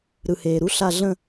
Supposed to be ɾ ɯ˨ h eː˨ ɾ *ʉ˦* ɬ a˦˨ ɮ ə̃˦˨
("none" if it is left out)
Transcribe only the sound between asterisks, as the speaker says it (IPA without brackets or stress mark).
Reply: u˦